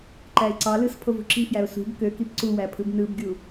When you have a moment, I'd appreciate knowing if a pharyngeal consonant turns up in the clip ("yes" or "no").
no